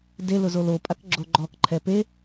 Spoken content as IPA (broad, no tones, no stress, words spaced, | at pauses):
delʊ zolopʼak ɡ͡ǁoɡ͡ǃɔkǃʰɛ pe